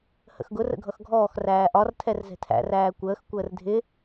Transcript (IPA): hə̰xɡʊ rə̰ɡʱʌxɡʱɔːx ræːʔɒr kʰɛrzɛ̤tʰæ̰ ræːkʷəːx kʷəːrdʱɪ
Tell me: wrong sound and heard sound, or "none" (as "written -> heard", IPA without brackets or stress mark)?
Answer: kʰ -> tʰ